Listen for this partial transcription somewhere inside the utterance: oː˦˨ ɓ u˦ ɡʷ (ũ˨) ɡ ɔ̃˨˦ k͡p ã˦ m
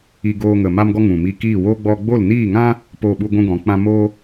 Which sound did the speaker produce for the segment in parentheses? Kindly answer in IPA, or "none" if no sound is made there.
ũ˦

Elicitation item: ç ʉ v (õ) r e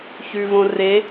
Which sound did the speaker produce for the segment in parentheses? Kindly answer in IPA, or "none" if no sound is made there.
õ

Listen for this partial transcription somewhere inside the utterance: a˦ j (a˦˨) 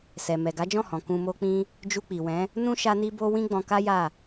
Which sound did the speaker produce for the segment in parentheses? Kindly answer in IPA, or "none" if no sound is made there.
a˦˨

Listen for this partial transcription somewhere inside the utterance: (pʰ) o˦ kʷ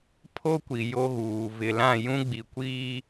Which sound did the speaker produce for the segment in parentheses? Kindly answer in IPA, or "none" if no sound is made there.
pʰ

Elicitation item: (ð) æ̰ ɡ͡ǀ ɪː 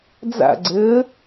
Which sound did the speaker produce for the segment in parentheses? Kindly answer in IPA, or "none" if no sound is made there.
d͡z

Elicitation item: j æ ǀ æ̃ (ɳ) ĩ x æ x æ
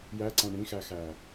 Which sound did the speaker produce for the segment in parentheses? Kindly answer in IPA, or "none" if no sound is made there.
ɳ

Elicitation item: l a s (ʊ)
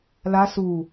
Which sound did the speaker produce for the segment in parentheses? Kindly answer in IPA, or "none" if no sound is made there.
u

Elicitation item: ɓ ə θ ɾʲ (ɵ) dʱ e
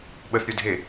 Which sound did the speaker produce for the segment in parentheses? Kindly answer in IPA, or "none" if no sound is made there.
ɵ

